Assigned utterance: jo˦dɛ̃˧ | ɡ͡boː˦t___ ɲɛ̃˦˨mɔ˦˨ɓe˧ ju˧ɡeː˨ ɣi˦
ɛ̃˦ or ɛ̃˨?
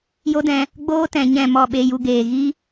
ɛ̃˨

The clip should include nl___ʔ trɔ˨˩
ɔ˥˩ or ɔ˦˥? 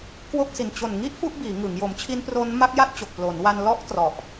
ɔ˦˥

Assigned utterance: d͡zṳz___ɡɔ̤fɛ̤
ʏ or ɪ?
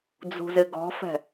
ɪ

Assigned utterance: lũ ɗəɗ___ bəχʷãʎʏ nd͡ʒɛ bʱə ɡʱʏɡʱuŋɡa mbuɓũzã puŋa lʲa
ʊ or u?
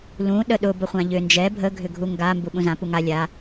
ʊ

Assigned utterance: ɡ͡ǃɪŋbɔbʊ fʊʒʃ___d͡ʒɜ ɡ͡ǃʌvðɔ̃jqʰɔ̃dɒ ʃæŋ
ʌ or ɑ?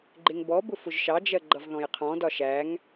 ɑ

